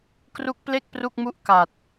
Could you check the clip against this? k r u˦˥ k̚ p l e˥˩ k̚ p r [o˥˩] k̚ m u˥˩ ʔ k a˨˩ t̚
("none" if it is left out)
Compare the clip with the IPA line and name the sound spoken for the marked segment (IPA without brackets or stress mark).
u˥˩